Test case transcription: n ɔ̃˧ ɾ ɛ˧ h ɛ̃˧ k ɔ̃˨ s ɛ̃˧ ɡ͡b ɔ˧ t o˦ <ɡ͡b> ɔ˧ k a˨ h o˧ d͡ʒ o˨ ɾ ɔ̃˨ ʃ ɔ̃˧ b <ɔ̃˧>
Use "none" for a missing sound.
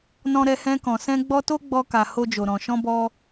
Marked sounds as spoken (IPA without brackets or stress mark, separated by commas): ɡ͡b, ɔ˧